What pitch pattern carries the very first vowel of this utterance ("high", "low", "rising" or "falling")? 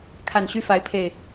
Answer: low